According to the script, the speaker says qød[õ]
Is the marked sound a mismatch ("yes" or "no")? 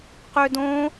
no